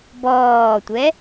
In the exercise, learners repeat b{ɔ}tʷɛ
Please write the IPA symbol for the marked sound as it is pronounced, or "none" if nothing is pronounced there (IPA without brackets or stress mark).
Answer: ɔː